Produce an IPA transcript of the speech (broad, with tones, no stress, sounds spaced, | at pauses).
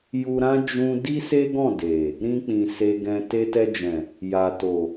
j u˧ ɾ ã˦ d͡ʒ ũ˦ d i˦ s e˦ ɡ ɔ̃˦˨ d e˨ | ɾ ĩ˧ k͡p ĩ˨ s e˧ ɡ ɛ̃˧ t e˧ t ɛ˧ d͡ʒ ɛ̃˨ | j a˨ t o˨